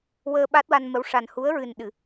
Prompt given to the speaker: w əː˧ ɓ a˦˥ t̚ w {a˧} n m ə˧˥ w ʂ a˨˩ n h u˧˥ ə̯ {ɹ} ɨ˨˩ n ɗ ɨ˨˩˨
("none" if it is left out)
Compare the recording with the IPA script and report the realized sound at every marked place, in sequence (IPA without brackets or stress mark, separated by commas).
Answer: a˧, ɹ